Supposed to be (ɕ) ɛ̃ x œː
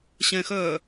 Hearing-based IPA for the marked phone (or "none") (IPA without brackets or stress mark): ɕ